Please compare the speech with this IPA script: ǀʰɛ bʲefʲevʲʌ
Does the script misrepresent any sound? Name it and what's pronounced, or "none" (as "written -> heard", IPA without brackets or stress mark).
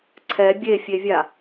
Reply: ʌ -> a